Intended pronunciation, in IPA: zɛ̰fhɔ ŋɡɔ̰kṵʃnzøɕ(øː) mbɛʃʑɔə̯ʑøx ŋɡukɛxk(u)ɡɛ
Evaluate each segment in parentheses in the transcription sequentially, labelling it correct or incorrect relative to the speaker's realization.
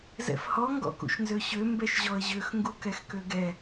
incorrect: ø, incorrect: ø

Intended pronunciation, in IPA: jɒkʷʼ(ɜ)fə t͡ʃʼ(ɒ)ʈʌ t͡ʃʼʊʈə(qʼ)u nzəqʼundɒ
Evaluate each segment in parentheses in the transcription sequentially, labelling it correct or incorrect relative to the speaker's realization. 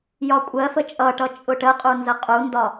correct, incorrect: ʌ, correct

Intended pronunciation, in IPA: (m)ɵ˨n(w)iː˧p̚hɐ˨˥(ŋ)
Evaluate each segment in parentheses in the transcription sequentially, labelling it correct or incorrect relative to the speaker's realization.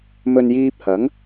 correct, incorrect: j, correct

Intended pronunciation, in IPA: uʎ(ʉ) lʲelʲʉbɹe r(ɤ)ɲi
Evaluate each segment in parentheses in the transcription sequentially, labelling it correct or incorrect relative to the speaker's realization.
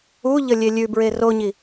incorrect: ə, incorrect: o

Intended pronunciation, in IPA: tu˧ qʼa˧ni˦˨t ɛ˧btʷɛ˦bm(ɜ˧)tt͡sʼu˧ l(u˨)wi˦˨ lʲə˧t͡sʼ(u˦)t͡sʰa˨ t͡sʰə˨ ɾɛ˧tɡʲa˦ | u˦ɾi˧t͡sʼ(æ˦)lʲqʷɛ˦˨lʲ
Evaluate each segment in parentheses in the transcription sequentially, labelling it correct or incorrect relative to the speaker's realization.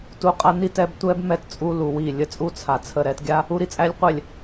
incorrect: ɛ˧, correct, correct, correct

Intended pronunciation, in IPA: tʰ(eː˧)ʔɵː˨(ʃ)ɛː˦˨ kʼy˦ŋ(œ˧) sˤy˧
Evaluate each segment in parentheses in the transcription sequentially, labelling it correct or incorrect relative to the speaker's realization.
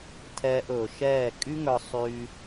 incorrect: ɛː˧, correct, correct

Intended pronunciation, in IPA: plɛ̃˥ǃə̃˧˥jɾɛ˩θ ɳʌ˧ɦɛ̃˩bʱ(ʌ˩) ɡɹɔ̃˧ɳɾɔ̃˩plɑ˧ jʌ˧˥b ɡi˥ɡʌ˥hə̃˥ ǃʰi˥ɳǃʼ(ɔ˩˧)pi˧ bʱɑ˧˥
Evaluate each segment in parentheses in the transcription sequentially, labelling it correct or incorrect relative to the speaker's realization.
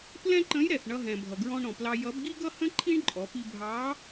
correct, correct

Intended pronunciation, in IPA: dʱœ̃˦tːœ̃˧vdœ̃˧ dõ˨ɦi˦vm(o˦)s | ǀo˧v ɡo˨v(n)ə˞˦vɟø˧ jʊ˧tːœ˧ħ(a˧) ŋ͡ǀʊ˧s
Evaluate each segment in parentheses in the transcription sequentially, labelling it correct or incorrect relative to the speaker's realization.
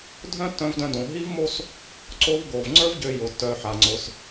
correct, incorrect: ŋ͡ǀ, correct

